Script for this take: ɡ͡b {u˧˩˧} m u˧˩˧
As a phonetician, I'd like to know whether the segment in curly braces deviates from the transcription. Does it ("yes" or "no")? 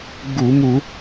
no